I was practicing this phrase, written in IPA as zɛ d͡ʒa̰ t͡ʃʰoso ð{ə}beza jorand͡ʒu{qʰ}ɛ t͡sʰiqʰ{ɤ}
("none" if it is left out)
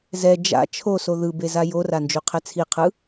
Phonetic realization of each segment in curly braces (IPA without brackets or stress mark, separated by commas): ɯ, qʰ, ɯ